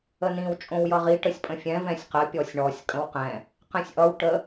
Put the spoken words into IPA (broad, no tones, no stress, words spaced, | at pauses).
ənĩw t͡ʃʼõwjʌʁi ʈəsʲpʼə̃fʲɛ̃ vɛ̃sʲqə pʲɔsʲɳɔsʲ kʼə̃wqɛ̃ | qɛ̃sʲʔʌw ʈə